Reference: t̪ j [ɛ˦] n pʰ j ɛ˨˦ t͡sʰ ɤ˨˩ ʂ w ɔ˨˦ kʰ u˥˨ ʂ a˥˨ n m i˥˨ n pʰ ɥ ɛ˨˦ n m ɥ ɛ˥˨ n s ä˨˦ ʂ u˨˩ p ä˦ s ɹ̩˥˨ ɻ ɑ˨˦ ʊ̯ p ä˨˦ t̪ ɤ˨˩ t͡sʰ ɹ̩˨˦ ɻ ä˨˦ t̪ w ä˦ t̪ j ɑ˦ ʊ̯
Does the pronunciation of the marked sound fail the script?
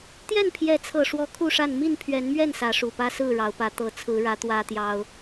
yes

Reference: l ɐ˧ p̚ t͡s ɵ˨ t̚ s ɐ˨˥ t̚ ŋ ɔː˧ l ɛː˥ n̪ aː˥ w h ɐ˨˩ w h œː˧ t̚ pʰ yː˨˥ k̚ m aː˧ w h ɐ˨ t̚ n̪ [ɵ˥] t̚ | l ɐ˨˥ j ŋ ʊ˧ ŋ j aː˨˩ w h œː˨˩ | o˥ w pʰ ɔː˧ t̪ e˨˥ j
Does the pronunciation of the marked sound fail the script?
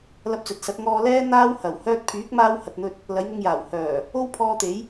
yes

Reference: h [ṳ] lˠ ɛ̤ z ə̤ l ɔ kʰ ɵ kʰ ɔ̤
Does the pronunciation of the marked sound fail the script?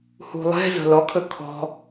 no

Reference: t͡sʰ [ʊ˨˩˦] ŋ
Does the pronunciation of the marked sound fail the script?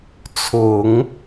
no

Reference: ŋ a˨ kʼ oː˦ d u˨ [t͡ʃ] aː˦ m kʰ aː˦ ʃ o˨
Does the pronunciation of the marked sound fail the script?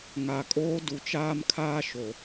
no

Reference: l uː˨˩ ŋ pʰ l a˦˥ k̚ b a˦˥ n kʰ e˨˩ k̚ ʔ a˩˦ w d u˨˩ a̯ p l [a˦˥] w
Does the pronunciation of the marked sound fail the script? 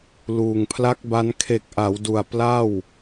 yes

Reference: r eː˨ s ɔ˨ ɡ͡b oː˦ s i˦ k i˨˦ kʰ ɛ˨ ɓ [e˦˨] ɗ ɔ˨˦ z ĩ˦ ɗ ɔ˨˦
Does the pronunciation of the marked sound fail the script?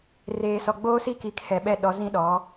yes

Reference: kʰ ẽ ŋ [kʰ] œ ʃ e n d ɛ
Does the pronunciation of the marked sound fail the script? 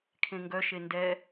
yes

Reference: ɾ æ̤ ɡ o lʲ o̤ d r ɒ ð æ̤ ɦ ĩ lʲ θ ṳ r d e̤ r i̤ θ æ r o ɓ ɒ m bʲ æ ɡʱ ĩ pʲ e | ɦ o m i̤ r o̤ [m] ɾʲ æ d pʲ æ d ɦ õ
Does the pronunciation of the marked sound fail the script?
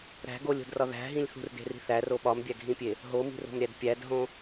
no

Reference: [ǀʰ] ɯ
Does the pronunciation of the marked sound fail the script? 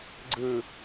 yes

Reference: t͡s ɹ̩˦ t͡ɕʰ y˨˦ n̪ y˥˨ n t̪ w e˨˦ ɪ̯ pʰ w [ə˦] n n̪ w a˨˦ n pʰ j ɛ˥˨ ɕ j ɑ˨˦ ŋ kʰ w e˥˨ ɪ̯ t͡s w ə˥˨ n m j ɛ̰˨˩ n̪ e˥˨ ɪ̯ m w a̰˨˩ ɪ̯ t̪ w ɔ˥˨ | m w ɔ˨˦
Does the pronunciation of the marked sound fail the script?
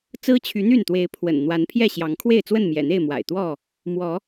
yes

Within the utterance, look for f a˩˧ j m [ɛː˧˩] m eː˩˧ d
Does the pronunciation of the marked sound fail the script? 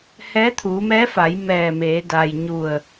no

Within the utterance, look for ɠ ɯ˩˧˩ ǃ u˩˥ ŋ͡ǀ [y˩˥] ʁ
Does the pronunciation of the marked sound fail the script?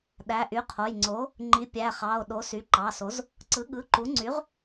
no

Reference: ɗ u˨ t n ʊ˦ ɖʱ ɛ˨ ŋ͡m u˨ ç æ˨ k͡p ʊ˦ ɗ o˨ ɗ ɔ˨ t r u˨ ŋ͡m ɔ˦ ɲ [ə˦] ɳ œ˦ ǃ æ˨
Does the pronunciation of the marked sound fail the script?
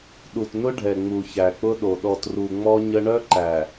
no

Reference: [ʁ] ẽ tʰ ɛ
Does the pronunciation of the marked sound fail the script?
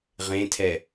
no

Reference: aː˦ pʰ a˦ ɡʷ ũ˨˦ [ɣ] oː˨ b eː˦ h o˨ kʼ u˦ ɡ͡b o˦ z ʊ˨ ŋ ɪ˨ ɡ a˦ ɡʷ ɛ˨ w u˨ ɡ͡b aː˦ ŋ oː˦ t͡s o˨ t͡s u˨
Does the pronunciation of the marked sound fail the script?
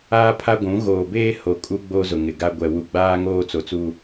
no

